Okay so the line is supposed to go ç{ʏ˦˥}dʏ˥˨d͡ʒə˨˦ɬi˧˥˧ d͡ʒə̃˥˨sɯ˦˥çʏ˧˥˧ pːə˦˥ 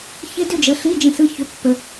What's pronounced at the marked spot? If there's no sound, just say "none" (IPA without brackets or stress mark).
ɪ˦˥